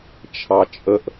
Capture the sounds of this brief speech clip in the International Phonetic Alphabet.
t͡ʃʰ ɑ t͡ʃʼ ə ʔ

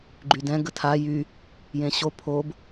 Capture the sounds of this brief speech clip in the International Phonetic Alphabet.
ɡ͡ǃ y d ɛ̃ ɡ ə tʰ a j y | j ẽ ɕ o pʰ o b

